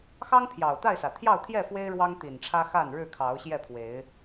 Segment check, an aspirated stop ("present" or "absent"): present